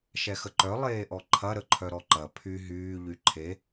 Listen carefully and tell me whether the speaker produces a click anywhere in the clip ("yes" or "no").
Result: yes